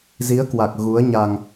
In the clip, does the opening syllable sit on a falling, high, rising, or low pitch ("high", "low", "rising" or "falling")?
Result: rising